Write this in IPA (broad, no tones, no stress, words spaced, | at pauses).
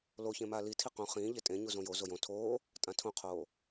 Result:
loçẽ maːlitʰi qõ χĩːʎe tʼẽɲuzõ jo zojõ tʰoː | tʼãtʰõqʰoː